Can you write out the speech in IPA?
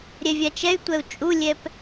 ɾʲɛvʲat͡ʃɛy̯tʷɛu̯ t͡ʃʼulʲɛp

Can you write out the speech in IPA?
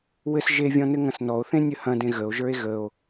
wɘs ʒevʲɔ̃ nɘŋɐ̃snɔo̯θẽ nʲəhɐ̃dẽ ɣəo̯ʒə˞e̯ ɣəo̯

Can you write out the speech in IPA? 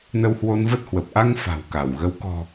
nə˧whwo˧nvə˦˥t̚hwə˨˩p̚ ʔa˧ŋ fa̤˨˩wka˧˩w ɣə˨˦w kɔ̤˨˩

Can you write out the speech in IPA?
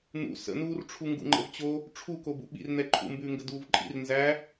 n̪ṵ sə̰nuːrʈ͡ʂʰu ŋɡṵŋ͡ǃə̰vt͡ɕo | ʈ͡ʂʰukobṵ ɓḭrn̪ɛ ǃʰṵmbʉːŋɡə duːvǃʼḭr nzæ

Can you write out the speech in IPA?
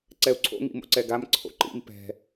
ǀɛu̯ǀʰo̰ ŋḭmo̰ǀɛɡam ǀʰo̰ǃḭm pɛ̤

